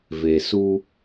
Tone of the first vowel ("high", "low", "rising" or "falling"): low